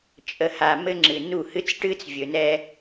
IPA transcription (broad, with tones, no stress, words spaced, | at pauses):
t͡ʃʼə˨ha˨ mɘ˦ŋ͡ǁɨ˨ nu˦˨hɨ˦t͡s ʈɨ˦t͡svʲɵ˨nɛ˦